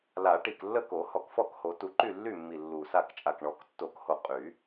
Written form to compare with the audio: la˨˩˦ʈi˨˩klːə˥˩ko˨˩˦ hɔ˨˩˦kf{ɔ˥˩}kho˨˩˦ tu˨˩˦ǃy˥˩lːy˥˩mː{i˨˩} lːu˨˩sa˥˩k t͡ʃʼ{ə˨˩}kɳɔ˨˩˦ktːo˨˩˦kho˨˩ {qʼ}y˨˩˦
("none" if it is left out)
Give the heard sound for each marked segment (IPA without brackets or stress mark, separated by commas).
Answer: ɔ˥˩, i˨˩, a˨˩, qʼ